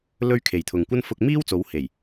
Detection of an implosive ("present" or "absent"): absent